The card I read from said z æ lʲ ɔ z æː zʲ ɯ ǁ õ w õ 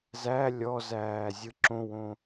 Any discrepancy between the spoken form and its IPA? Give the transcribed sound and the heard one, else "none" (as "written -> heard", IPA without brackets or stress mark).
none